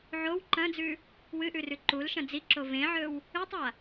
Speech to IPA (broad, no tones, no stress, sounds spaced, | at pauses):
ʕ o w ǃ ɐ̃ d͡z ʉ | w ɨ ʔ ʉ r ʉ ǃ u l ʃ ɐ̃ d͡z i ǁ o v ẽ ʕ ɵ w | ɨ tˤ a